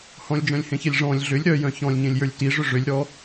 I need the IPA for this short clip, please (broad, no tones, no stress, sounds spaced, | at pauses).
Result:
h ɔ̃ lʲ d͡ʒ œ̃ lʲ h ẽ ç e lʲ ʐ ɔ̃ lʲ ɮ ʏ lʲ ɾ œ j œ̃ ç ɔ̃ lʲ ɲ ẽ lʲ j ə˞ lʲ t i ʐ ʏ ʐ ʏ lʲ ɾ ɔ